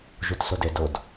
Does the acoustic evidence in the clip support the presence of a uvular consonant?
no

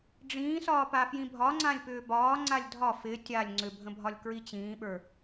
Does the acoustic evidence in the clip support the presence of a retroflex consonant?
yes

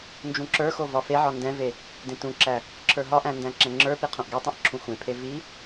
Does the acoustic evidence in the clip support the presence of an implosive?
no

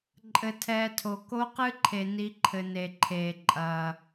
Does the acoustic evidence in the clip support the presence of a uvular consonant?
yes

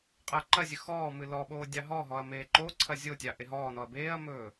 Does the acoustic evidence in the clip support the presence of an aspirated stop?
yes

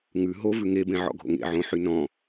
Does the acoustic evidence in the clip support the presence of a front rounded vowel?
yes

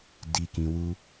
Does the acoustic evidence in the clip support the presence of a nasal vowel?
yes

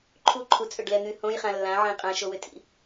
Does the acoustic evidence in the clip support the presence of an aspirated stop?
yes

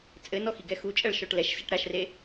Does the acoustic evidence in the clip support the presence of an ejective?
yes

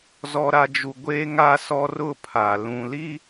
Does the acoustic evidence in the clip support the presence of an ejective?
no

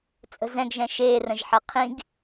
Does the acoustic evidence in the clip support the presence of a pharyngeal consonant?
yes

